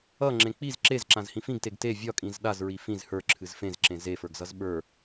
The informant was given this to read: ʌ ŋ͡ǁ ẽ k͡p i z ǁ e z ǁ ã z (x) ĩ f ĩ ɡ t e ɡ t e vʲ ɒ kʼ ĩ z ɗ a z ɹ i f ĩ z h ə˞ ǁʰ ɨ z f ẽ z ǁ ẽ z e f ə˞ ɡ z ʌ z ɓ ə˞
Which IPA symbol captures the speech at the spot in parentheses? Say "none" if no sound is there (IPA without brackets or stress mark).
h